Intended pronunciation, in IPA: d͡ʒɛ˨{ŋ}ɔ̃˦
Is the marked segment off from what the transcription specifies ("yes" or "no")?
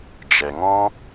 no